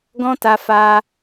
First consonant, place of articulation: velar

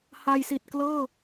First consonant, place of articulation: glottal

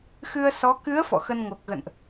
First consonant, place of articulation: velar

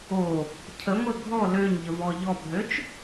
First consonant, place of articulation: palatal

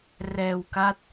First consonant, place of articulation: alveolar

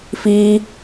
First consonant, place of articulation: labial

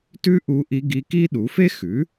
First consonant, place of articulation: alveolar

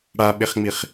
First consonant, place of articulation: retroflex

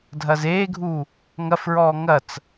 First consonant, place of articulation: alveolar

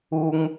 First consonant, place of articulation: velar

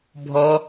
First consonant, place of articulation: labial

